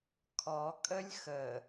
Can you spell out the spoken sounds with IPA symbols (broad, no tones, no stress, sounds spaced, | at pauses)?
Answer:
kʰ ɔ kʼ ə lʲ x ə